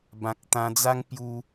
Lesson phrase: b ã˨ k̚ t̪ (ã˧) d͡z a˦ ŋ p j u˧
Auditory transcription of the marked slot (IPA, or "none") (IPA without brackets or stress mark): ã˧